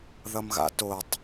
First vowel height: mid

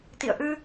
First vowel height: high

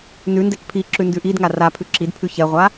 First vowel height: high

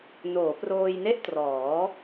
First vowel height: mid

